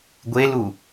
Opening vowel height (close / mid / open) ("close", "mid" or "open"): mid